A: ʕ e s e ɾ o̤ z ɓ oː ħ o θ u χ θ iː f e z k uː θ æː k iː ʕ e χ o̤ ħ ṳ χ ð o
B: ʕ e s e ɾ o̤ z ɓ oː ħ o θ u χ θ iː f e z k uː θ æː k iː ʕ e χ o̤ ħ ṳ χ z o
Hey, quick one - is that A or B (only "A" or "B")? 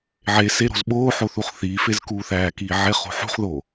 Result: A